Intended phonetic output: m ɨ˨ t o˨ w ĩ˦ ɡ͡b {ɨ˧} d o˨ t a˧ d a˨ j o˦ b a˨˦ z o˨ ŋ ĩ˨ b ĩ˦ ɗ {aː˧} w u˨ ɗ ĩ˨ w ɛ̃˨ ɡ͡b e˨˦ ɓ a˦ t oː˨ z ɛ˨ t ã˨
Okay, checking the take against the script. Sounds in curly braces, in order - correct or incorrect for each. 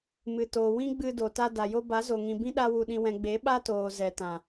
correct, incorrect

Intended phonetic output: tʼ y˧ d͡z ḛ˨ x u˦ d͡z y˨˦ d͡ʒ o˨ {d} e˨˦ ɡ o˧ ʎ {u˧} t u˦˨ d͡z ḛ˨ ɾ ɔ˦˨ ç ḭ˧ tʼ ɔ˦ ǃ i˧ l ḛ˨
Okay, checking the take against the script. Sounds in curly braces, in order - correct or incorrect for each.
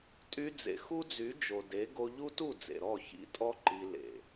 correct, incorrect

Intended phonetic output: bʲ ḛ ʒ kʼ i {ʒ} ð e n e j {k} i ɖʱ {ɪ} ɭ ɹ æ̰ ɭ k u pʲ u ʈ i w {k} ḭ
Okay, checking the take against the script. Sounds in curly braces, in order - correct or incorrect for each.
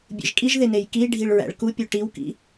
correct, correct, incorrect, correct

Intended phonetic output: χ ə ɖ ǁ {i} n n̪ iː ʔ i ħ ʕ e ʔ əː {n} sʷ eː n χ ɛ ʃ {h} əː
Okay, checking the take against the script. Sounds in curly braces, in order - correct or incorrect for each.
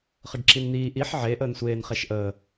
correct, correct, incorrect

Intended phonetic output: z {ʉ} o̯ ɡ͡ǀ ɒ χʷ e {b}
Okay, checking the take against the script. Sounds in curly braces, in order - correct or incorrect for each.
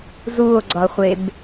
incorrect, correct

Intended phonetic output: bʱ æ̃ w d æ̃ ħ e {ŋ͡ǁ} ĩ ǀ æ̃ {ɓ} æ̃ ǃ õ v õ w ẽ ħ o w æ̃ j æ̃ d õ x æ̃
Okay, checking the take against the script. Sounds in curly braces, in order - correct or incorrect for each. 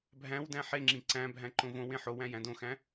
correct, incorrect

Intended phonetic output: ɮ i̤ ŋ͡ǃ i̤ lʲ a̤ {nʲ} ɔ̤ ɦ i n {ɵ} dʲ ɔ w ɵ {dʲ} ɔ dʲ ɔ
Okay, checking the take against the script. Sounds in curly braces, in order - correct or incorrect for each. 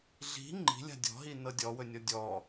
incorrect, incorrect, incorrect

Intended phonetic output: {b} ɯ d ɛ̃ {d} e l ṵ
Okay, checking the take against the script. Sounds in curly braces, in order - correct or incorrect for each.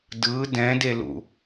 incorrect, correct

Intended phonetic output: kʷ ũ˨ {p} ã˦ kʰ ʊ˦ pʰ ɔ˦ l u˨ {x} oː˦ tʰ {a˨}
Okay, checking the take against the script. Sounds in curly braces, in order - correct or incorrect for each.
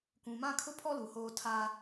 incorrect, incorrect, incorrect

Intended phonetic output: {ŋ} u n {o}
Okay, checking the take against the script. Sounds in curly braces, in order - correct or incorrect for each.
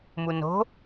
incorrect, incorrect

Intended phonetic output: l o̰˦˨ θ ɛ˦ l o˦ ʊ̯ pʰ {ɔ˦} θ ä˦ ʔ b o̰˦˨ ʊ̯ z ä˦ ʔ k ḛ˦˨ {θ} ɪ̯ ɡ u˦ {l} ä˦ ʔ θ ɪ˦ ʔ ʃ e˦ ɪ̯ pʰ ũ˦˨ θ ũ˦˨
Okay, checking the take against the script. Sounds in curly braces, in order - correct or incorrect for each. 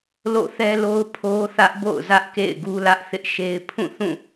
incorrect, incorrect, correct

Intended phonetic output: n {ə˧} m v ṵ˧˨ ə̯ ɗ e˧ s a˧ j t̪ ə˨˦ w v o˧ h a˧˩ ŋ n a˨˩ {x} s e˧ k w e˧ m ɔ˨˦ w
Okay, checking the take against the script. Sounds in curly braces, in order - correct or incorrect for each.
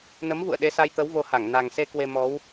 incorrect, incorrect

